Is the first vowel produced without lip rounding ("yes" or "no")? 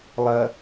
yes